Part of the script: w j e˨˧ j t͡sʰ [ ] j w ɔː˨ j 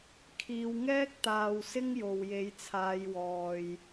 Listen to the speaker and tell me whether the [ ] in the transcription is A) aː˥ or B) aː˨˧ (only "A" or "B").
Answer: B